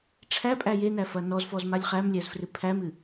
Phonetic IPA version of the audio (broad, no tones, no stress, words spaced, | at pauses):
ʈ͡ʂʰæpʼæ jenæfɐ nɔzfɔzmalʲ χæmlʲæzfrɨ pʰæmɨ